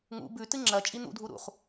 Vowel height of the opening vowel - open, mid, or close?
close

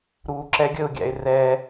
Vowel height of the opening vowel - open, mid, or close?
close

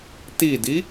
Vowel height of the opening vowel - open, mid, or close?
close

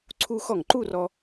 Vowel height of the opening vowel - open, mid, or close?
close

